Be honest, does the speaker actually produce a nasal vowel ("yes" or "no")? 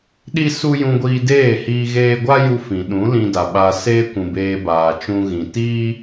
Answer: yes